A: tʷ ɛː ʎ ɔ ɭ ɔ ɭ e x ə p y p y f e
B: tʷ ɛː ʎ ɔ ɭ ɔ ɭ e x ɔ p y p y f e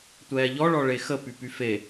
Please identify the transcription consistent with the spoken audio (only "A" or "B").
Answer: A